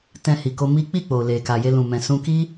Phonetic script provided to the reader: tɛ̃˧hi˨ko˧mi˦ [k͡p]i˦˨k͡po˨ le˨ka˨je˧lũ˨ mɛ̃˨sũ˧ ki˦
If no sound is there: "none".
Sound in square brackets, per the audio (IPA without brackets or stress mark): k͡p